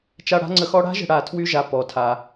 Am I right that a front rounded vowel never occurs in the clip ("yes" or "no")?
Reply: no